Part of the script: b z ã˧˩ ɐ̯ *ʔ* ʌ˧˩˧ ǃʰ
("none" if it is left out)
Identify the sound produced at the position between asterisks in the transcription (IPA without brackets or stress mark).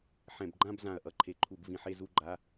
ʔ